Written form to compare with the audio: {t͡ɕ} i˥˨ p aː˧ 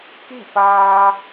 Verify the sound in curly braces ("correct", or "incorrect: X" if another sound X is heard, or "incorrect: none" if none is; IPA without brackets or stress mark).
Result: incorrect: k